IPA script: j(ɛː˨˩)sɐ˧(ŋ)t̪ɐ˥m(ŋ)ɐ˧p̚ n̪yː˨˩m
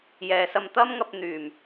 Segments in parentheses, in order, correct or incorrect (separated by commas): incorrect, incorrect, correct